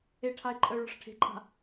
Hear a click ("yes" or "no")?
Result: yes